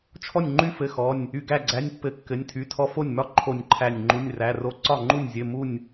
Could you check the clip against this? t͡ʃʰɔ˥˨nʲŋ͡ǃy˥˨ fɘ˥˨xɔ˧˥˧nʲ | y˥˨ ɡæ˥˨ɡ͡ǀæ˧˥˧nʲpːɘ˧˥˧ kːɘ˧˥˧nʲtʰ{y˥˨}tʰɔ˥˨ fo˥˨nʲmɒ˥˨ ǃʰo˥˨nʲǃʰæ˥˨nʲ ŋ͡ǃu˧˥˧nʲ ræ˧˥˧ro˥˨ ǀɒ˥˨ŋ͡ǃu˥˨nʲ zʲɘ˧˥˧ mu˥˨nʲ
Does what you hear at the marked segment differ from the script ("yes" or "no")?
yes